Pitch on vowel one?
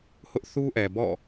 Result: high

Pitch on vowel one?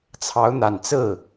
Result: rising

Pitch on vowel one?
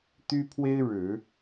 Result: high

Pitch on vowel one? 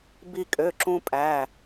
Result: high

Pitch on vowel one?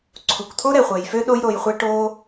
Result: low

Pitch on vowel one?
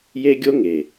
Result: high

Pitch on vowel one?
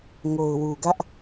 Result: low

